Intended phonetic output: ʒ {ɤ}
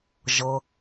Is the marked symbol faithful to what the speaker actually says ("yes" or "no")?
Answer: yes